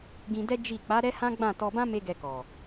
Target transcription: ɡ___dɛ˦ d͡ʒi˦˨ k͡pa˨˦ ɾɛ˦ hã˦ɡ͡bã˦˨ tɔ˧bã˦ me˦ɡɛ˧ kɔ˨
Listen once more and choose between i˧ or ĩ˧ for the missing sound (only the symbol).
ĩ˧